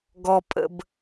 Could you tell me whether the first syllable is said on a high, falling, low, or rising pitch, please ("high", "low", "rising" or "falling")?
low